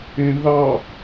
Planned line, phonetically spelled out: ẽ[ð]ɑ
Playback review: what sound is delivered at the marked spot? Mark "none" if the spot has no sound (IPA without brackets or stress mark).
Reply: ð